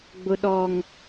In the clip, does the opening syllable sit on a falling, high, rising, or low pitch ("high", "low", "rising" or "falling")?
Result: high